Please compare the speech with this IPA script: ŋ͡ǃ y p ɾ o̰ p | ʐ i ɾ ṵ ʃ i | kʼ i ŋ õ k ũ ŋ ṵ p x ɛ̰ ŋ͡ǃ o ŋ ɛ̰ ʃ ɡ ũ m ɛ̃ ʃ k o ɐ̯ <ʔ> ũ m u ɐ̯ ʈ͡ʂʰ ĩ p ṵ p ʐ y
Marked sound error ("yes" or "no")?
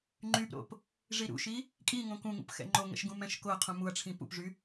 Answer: yes